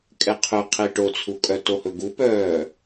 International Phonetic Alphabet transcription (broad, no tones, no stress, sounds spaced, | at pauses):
kʼ ɛ qʰ ʉ qʰ i ʈ o t͡sʰ u kʼ œ t o h ɵ ɡ u p œː